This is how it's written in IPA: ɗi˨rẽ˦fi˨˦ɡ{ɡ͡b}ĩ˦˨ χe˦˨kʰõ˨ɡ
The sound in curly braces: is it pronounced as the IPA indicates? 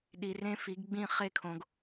yes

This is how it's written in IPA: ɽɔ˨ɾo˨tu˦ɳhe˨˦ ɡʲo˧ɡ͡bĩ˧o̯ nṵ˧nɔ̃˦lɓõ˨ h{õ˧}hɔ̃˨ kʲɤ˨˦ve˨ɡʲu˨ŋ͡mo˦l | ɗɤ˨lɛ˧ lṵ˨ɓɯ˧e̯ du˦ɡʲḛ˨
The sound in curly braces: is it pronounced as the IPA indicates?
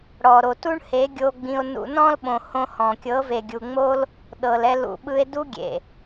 yes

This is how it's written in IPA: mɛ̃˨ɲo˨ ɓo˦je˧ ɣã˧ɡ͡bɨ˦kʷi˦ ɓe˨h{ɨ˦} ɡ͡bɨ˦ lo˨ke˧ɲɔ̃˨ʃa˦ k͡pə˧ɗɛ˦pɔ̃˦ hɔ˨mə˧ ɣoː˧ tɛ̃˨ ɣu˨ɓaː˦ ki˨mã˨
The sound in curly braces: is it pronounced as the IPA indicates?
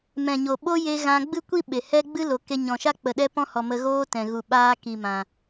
no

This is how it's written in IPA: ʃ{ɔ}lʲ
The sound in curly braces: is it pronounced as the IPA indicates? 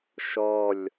yes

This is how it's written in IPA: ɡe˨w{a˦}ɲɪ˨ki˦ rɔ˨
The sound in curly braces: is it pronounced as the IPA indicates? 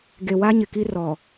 yes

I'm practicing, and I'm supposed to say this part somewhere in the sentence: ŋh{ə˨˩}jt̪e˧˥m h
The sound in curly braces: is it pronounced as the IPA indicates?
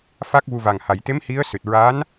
no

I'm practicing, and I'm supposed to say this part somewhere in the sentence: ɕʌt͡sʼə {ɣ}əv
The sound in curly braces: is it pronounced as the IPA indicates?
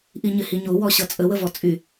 no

